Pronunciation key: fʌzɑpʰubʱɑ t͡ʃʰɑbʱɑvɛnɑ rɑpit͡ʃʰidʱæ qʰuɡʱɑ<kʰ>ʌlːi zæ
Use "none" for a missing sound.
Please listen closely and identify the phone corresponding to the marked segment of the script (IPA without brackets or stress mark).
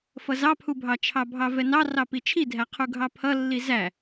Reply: pʰ